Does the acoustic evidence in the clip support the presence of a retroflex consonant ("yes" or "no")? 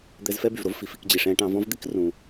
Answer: yes